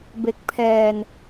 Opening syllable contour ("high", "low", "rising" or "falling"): low